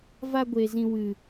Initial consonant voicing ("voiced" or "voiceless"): voiced